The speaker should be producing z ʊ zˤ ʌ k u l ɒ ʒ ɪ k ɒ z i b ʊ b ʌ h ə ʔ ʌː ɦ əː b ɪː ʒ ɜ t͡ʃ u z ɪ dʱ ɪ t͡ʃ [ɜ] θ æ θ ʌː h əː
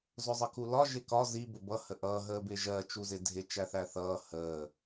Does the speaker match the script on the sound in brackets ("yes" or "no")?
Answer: no